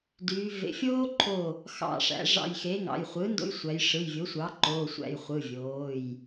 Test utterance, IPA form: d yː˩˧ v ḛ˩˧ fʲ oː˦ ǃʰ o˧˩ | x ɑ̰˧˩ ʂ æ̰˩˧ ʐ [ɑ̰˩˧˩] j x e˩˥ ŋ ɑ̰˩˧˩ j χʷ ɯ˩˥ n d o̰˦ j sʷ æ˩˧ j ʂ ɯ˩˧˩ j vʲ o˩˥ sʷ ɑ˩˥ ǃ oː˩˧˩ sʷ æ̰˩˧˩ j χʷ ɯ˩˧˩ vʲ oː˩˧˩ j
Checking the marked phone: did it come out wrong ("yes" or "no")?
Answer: yes